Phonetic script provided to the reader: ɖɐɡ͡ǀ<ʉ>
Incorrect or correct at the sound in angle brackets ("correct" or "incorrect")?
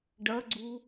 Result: incorrect